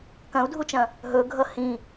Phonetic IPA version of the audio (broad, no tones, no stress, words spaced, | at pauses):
kɐ̃u̯dʱut͡ʃɐ̃ | ɦɵɡʱʌ hĩ